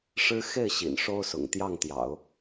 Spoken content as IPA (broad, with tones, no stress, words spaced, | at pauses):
ʂɻ̩˥ xe˥˩ɪ̯ɕḭ˨˩n ʂo˥ʊ̯sʊ̰˨˩ŋ t̪jɑ˥˩ŋt̪jɑ̰˨˩˦ʊ̯